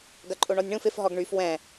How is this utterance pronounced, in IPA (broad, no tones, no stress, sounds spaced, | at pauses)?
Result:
ɡ ɐ ǃʼ o ɳ ɔ nʲ ɳ ũ f ɪ f ɦ ɔ ɡ ɳ y f w ɛ̃